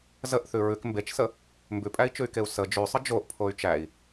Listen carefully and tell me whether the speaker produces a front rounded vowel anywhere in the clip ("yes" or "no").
yes